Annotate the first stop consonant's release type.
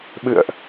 implosive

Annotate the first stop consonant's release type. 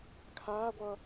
aspirated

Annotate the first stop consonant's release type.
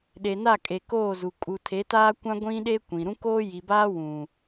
implosive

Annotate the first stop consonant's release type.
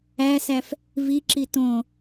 click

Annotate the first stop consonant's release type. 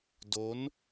plain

